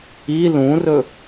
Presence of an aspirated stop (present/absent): absent